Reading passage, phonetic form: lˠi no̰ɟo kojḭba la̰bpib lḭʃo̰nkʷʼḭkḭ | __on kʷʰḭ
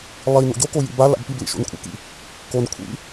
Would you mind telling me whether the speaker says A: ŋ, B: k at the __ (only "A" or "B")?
B